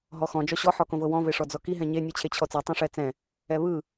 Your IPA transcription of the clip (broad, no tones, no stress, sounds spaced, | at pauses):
ɦ ɔ x ɔ̃ d͡ʒ ɔ ɕ ɔ ħ ɔ k õ v ɤ w ɔ̃ v e ʂ ɔ d͡z ɔ k i ɦ ɛ̃ ɲ e nʲ ɯ t͡ɕʰ e t͡ɕʰ ɔ t͡s e tˤ õ ʂ ɛ t͡s ɛ̃ | ɛ β ɯ